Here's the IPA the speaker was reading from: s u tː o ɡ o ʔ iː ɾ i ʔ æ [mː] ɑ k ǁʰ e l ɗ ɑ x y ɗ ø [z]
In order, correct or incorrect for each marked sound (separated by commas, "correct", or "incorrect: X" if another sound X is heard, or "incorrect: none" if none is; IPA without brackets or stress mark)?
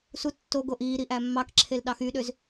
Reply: correct, correct